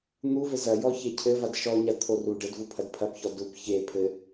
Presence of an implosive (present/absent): absent